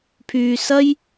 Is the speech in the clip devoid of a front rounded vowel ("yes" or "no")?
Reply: no